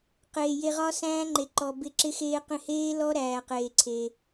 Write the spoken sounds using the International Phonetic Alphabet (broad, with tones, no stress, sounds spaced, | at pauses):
q eː˨ j e˧ ʁ ɒ˦ s æ̃ː˦ ŋ͡ǃ e˨ ǃ ɔ˨ b ɪ˧ ǁ ɪ˧ x eː˧ q ẽ˧ h eː˦ l ɔ˦ ɾ æː˨ q eː˨ ǀʰ e˧